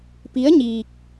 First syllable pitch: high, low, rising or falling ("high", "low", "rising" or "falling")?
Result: rising